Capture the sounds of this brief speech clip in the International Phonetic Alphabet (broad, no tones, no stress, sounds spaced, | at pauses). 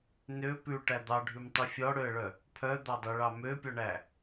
n ø p ʉ ʈ æ d̪ ɑ ɖʱ ʉ m tˤ ʉ fʲ ɔ ɽ ø ə̯ ɭ œ | pʰ œ d̪ ɑ dˤ ø ɭ ɑ m ø pʲ ɔ ɳ æ